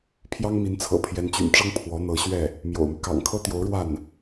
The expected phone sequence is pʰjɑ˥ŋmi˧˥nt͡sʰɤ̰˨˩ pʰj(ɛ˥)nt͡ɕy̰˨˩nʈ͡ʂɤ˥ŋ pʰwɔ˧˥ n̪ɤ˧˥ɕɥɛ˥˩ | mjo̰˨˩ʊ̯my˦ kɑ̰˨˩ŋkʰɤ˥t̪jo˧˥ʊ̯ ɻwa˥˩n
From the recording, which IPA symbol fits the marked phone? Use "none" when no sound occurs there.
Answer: ɛ˧˥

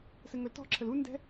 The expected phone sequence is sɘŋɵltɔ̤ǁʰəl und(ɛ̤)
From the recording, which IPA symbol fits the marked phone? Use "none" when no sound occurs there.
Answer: ɛ̤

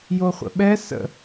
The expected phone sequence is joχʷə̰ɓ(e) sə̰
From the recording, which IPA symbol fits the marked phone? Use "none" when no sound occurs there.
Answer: ɛ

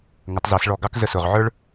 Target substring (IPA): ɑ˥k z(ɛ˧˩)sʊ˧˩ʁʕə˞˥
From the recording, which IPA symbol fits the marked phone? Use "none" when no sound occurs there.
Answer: ə˧˩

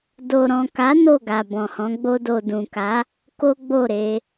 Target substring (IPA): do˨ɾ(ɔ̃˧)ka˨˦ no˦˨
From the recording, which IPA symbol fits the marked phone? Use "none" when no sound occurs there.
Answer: ɔ̃˨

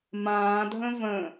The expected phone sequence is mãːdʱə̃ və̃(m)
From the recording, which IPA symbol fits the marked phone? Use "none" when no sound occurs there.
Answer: none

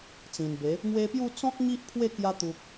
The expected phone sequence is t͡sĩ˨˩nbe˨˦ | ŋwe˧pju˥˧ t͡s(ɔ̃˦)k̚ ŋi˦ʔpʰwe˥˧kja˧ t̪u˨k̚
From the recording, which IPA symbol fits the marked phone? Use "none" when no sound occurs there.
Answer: ɔ̃˦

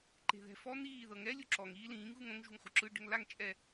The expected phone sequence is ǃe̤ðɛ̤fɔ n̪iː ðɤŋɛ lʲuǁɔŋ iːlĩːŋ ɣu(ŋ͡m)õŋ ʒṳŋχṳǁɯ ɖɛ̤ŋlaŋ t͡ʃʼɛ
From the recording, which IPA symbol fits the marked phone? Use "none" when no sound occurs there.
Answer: ŋ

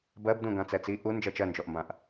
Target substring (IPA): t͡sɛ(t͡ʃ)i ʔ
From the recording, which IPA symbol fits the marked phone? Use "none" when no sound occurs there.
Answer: t͡s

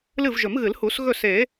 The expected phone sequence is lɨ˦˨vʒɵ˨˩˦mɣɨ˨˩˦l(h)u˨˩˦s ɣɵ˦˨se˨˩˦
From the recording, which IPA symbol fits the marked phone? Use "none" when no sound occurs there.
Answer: h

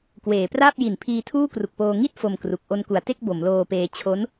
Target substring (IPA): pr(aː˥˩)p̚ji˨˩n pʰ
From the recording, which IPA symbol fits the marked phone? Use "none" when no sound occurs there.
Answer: aː˥˩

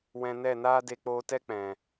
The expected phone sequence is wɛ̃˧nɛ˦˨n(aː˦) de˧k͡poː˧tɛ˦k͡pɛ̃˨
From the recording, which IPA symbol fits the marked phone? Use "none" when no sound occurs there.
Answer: aː˦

